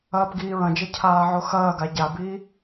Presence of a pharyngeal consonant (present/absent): present